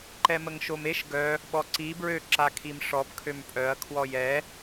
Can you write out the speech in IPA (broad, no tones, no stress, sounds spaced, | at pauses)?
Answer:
ǃ ɛ m ə ŋ ʃ o m e ʃ ɡ œ | ɓ ɔ ǀ i b ɹ ø ǁ a kʰ i m ʂ ɔ b kʰ ø m pʼ œ ɐ̯ kʰ w ɔ j ɛ